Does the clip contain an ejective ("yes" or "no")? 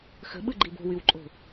yes